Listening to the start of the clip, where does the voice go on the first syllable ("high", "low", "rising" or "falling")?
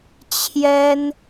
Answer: high